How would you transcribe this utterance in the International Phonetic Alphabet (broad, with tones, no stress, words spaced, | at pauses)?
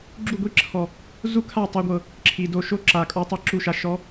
ɡ͡ǁu˦˨ɡʷi˦ǁʰɔ˨ | zu˦kʰa˦˨ tˤɤ˧ɡʷɤ˨ | ǁʰi˨do˧ʃo˦ǁa˨ kʼɔ˧tˤi˦˨ǁu˦˨ʃa˧ ʃɔ˨˦